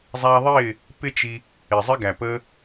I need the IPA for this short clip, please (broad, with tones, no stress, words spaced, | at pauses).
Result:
zˤæ˧ðˤɪː˦˨ | pɪ˦t͡ʃi˧ | ɪ˨zˤɪ˧ ɡæ˨pəː˧